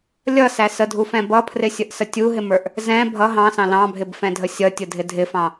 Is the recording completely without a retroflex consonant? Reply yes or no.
yes